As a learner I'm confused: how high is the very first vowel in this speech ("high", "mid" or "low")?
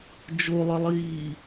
mid